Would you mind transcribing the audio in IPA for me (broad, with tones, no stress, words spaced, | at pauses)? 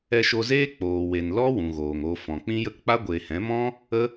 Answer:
ɛ˧ʃo˧zeː˦ k͡poː˨we˨n lɔ˦ wũ˨ɣoː˨ŋ o˧fɔ̃˨ k͡pĩ˦jə˦k k͡pa˦ɡʷeː˨ hɛ̃˨˦mɔ̃˦ | ə˦